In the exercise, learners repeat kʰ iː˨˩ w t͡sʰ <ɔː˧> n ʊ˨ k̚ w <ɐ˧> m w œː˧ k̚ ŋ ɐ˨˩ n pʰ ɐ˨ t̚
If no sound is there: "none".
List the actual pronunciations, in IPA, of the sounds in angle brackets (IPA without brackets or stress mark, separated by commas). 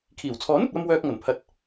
ɔː˨˥, ɐ˧